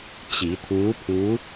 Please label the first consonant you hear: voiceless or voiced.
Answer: voiceless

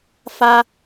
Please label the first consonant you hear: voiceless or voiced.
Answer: voiceless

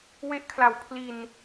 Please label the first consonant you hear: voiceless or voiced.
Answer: voiced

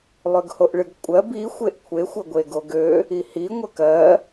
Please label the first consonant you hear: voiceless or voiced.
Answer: voiced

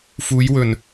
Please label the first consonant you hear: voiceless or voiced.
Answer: voiceless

